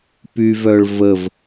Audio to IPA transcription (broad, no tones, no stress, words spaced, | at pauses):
pyvœɭ vəv